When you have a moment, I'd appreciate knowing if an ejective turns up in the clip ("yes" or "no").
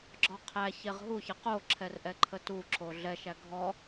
no